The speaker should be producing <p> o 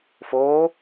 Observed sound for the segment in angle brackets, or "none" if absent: f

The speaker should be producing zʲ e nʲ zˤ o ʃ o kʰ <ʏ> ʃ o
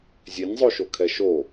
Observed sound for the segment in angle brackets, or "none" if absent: ɛ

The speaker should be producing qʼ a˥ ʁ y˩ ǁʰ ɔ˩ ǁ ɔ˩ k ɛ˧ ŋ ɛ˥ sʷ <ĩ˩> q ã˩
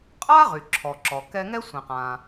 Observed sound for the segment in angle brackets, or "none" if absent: ĩ˩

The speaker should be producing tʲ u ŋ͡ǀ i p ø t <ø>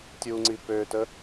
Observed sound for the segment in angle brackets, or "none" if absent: ə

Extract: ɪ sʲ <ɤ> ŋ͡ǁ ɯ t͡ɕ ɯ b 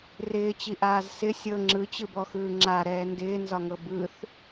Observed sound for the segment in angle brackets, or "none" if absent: ɤ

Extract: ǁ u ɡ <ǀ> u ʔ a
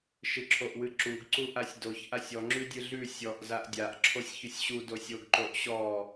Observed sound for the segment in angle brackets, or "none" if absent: ǀ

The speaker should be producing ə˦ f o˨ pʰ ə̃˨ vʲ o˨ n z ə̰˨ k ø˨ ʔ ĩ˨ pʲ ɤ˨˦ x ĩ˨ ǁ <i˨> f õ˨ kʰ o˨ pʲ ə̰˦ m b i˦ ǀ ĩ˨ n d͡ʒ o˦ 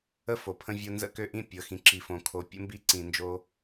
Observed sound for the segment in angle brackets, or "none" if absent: i˨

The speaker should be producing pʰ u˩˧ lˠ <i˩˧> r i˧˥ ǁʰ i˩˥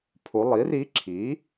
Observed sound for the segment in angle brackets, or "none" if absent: i˩˥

